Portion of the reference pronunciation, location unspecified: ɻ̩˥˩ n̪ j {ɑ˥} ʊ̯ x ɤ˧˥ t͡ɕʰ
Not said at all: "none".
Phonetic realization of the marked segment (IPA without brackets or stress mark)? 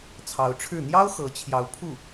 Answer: ɑ˥